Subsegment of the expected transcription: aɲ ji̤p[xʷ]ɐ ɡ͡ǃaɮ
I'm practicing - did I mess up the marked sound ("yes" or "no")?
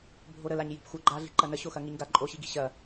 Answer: no